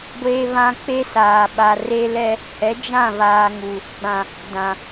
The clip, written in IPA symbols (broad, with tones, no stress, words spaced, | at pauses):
ɡʷeː˦βã˦ k͡pe˦saː˨ ɓa˨ re˦lɛ˦ | hɛ˨˦d͡ʒã˦˨βaː˨ŋu˨ | ɡ͡bã˨ | dã˨